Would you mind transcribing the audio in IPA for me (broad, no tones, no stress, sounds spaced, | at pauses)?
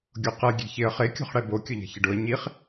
ɡʲ o q ɛ ɡʲ e̤ ç ɪ ə̯ χ e kʲ o̤ χ ɽ ɛ b o kʲ ʊ ʎ ɛ̤ ç ɪ ɖ ʊ ə̯ ɲ i χ